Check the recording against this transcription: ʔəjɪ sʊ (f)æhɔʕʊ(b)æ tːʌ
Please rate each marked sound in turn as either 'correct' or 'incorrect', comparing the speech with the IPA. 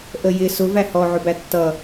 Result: incorrect, correct

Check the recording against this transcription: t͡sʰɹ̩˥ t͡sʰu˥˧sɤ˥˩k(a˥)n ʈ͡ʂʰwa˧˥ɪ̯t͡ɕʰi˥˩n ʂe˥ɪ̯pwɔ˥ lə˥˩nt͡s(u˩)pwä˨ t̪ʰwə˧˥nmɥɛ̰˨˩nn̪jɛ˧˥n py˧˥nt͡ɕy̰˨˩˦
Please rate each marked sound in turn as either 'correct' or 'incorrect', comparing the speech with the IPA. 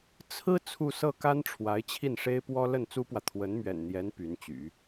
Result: correct, incorrect

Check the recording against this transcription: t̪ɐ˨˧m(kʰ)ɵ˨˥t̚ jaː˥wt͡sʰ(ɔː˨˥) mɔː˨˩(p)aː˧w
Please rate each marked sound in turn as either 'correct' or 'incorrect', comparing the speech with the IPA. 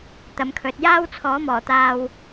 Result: correct, correct, incorrect

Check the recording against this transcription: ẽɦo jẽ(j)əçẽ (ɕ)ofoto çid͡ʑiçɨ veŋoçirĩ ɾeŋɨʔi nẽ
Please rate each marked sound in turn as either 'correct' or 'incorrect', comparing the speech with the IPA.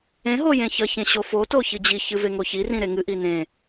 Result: incorrect, correct

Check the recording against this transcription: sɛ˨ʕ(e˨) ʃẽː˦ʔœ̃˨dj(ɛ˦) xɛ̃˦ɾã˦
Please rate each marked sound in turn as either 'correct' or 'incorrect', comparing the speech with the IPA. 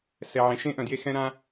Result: incorrect, incorrect

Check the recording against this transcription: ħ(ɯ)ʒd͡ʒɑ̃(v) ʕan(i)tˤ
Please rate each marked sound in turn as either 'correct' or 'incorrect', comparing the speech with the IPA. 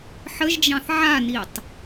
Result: incorrect, incorrect, correct

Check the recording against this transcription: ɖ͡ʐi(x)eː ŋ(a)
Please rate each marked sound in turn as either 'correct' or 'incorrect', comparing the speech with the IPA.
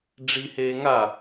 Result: incorrect, correct

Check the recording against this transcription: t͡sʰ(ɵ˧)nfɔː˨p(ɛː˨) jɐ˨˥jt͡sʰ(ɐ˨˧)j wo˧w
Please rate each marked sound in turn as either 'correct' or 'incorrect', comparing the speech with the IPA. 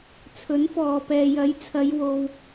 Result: incorrect, correct, correct

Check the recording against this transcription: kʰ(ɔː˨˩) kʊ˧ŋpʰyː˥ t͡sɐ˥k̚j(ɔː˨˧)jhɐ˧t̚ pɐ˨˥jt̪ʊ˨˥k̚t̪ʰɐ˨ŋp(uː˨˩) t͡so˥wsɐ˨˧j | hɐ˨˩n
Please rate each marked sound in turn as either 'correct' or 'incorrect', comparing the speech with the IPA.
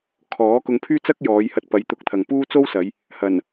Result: incorrect, correct, incorrect

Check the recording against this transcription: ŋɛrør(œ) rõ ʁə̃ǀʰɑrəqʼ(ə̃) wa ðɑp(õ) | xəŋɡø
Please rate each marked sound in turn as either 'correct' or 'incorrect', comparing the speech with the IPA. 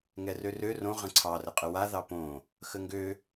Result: incorrect, incorrect, correct

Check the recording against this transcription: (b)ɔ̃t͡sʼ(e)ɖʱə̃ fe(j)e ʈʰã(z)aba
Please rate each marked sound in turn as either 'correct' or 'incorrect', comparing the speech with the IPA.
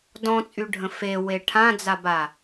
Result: incorrect, incorrect, incorrect, incorrect

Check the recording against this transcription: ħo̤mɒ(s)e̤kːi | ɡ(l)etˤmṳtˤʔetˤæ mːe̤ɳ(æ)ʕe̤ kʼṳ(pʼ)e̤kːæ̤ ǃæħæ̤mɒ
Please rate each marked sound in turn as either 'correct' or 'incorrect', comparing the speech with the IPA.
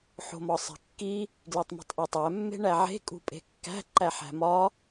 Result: incorrect, correct, correct, correct

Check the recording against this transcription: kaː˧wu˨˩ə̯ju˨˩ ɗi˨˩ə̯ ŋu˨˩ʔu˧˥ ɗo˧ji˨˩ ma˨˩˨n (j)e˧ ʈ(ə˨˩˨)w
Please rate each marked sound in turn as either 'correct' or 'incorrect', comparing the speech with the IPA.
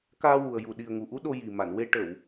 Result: incorrect, correct

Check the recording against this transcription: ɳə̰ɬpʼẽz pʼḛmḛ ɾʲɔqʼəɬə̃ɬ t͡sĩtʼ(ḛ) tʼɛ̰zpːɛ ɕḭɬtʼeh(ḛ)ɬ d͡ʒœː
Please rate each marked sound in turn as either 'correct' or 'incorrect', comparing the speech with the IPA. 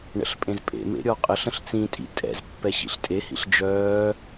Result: incorrect, incorrect

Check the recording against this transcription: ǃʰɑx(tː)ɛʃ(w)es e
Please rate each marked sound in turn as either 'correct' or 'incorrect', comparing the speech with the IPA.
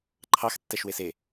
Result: correct, correct

